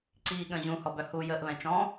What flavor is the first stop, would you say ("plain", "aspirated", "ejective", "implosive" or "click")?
click